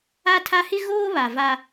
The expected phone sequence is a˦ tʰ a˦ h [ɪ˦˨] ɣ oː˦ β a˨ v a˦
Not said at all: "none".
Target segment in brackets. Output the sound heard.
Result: ɪ˦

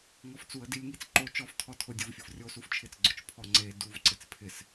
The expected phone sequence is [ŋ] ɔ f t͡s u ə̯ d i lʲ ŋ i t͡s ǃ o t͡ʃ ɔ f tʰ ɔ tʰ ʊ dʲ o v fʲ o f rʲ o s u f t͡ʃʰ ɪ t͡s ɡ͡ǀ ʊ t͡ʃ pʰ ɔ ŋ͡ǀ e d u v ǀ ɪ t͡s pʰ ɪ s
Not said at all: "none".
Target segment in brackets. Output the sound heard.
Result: ŋ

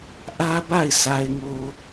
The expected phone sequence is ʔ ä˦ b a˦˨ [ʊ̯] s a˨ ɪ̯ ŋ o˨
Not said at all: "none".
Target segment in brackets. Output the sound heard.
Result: ɪ̯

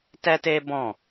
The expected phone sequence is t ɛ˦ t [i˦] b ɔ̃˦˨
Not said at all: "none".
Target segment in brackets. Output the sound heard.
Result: e˦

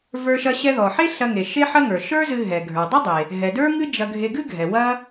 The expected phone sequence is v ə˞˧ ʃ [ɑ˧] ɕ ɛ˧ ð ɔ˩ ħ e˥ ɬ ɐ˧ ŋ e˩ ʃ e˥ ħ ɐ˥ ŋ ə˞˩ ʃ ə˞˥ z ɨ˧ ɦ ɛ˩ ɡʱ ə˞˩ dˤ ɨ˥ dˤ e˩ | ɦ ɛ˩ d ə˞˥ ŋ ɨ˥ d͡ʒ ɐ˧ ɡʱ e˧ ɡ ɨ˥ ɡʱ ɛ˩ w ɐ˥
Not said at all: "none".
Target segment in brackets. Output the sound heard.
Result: ɐ˧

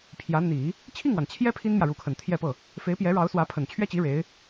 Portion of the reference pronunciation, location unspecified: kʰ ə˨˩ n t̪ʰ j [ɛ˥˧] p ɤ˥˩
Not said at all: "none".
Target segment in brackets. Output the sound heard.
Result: ɛ˥˧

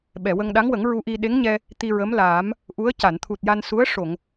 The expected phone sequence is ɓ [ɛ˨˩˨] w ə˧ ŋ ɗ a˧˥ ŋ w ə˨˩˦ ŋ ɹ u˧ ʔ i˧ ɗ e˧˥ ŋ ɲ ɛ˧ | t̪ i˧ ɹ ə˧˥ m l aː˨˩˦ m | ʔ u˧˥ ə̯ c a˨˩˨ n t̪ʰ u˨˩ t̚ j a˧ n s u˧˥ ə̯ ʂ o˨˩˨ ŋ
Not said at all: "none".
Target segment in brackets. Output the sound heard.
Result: ɛ˨˩˨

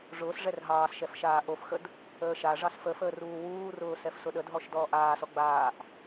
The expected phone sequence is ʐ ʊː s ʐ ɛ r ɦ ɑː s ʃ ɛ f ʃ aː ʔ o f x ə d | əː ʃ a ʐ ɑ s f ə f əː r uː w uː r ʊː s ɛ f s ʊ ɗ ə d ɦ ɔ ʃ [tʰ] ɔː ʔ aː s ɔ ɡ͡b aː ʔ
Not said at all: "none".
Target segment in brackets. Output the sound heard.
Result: d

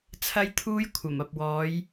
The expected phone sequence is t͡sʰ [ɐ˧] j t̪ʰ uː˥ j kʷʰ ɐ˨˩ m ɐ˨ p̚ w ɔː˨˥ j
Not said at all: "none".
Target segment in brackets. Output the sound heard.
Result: ɐ˥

